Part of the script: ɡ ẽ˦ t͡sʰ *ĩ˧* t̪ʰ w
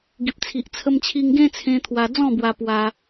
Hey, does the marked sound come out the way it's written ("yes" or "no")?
no